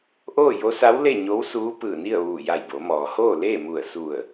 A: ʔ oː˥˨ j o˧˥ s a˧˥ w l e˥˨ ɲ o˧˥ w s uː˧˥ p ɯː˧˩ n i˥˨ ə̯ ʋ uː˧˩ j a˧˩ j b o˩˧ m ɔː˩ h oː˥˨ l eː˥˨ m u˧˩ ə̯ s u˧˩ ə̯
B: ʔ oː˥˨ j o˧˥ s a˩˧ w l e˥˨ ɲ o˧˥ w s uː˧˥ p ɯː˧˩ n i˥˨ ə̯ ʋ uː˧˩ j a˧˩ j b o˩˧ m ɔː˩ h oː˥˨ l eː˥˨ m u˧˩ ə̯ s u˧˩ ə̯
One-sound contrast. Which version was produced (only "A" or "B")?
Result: A